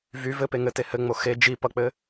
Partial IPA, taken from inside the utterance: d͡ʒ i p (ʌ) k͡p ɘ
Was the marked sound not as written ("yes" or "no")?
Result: no